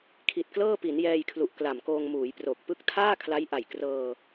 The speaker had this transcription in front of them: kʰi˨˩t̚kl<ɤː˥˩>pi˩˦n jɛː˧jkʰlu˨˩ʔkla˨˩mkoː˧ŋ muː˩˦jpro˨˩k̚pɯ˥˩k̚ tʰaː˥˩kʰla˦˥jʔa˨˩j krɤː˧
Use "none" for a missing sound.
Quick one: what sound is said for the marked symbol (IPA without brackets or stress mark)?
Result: ɤː˥˩